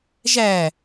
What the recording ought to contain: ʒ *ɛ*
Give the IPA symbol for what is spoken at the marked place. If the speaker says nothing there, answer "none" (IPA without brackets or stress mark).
æ